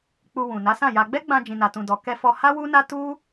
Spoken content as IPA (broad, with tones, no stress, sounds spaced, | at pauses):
k͡p u˧ w ũ˨ n a˨˦ s ã˦˨ j a˧ ɡ͡b ɛ˦ ɡ͡b ã˧ d͡ʒ ĩ˨ n a˨ t ũ˨ d ɔ˨ k ɛ˧ f ɔ˧ h a˦ w u˦ n a˦ t u˦